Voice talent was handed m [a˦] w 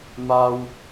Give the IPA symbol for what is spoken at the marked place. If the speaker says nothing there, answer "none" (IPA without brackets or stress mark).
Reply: a˦